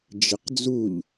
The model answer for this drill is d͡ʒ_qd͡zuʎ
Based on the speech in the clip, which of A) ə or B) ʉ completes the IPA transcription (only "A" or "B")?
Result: A